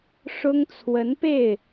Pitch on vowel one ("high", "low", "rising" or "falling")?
high